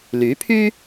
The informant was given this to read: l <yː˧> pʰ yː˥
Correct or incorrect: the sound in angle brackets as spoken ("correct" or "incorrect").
incorrect